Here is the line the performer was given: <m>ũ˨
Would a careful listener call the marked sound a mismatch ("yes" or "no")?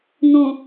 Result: yes